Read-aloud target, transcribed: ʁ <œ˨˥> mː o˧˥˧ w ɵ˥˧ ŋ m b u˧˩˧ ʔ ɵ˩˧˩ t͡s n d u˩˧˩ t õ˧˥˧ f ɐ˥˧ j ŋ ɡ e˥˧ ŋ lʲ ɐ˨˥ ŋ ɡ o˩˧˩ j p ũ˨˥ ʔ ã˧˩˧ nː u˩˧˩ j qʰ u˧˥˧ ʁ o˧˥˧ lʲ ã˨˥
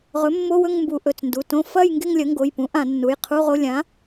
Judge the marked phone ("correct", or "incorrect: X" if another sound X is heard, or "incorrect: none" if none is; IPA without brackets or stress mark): incorrect: ɵ˨˥